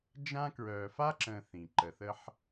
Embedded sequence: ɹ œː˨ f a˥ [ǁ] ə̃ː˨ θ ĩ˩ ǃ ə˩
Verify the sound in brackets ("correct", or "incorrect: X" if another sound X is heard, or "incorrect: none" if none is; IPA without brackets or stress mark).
correct